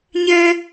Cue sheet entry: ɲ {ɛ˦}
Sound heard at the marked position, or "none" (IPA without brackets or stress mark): ɛ˦